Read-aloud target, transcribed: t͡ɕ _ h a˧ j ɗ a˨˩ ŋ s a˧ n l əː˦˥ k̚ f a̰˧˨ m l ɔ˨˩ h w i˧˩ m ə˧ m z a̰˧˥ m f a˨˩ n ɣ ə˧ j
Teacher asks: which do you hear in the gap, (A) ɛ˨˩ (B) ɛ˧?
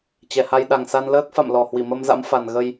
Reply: A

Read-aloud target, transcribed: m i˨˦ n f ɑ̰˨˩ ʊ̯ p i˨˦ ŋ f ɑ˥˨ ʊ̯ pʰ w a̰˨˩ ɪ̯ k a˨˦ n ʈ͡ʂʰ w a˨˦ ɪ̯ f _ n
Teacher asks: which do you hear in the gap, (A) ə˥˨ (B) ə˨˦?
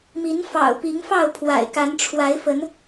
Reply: B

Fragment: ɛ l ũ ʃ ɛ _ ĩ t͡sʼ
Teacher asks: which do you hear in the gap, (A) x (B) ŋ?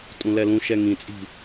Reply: B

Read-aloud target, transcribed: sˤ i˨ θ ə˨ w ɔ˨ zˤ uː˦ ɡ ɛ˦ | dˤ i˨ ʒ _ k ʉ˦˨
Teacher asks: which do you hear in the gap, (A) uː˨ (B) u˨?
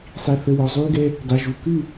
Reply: B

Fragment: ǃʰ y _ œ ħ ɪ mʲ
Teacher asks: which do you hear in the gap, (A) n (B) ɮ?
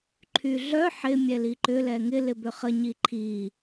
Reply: B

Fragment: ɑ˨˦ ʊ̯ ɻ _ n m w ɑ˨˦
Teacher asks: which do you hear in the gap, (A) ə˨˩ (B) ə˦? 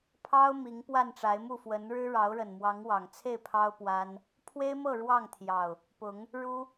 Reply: A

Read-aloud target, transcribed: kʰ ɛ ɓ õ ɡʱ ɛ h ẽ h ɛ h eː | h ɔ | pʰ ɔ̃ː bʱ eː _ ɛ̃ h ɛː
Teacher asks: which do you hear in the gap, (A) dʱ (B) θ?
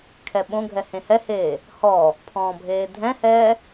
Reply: A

